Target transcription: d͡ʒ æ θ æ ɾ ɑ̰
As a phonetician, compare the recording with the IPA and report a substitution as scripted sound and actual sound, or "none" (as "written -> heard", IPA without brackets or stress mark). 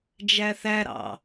none